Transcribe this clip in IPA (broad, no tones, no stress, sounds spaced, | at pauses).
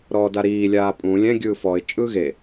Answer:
ɾ ɔː d a ɾ iː lʲ aː pʼ ũ lʲ ɛ̃ ɡʲ ɯː f ɔ ɪ̯ t͡ʃʼ ɯː ɣ e